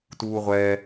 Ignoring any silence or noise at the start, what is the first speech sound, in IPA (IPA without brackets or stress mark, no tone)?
t